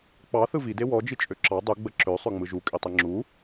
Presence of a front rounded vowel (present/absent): present